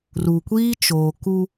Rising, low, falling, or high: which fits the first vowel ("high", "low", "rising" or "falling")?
low